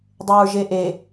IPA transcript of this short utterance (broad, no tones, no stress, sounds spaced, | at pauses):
dˤ e ɹ ʒ e ʔ e